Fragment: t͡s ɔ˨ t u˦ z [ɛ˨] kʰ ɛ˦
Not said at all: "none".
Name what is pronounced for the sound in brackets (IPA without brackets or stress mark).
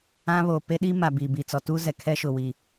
ɛ˨